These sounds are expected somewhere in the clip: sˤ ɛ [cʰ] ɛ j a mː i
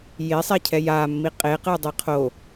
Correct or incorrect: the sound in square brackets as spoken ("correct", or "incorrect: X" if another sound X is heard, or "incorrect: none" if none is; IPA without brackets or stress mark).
correct